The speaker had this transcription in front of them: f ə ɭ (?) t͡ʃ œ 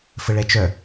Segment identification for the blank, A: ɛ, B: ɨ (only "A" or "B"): A